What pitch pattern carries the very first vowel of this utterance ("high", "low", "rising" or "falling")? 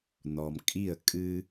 low